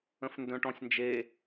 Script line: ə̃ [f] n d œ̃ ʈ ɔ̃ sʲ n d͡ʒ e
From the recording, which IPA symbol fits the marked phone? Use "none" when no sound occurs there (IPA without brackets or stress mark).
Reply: f